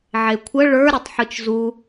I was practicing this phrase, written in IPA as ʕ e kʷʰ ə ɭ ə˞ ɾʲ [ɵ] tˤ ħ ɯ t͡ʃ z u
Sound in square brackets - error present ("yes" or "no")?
yes